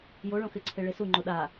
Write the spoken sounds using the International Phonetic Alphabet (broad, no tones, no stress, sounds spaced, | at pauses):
j o ɭ õ x ɪ ǀʰ e ɭ e s u ŋ͡ǃ o ɗ a